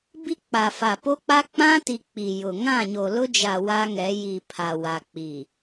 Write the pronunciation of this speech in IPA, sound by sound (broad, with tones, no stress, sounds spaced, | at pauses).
b i˦ k͡p a˨ f a˨ p o˦ k͡p a˦ k͡p ã˦ t i˨ k͡p i˨ j ʊ˨ ŋ ã˦˨ ɲ o˨ l ʊ˦ d͡ʒ a˨ w aː˦ ŋ ɛ˨˦ j i˨ pʰ a˨ w a˨ k͡p i˨